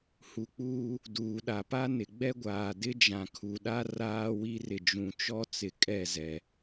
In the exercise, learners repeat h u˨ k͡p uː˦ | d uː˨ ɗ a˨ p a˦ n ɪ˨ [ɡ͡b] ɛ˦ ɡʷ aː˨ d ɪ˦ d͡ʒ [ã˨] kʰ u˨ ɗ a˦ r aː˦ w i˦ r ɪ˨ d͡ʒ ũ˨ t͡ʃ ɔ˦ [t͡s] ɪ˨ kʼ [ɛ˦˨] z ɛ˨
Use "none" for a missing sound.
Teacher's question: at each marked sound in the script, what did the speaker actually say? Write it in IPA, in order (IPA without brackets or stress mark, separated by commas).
ɡ͡b, ã˨, t͡s, ɛ˦˨